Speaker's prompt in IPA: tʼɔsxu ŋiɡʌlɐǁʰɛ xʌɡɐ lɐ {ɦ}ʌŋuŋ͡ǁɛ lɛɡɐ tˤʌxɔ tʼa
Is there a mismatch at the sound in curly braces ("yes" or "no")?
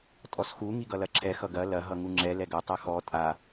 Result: no